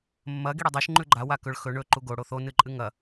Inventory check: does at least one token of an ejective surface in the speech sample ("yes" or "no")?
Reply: yes